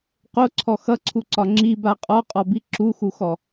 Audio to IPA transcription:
q o ǀʰ ɔ x ʌ ǀʰ u ǀ ɒ ŋ͡ǁ i b a qʼ ɔ qʼ ɔ b i ǁ u x u x ɔ

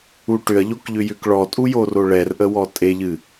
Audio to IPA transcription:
u ʈ ʏ ɐ̯ ʎ o k ʎ ʏ j ʏ k ɭ ɔ tʼ u j o r o ɭ ɛ r ʔ ə w ɔ tʼ e ʎ ɨ

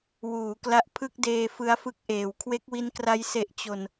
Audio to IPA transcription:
w uː˩˦ k l a˦˥ ʔ pʰ ɯ˥˩ k̚ d eː˧ f ɯ˦˥ a̯ f ɯ˦˥ k̚ ʔ eː˩˦ w kʰ w e˦˥ k̚ w i˦˥ n k r a˦˥ j s e˨˩ ʔ t͡ɕ o˨˩ n

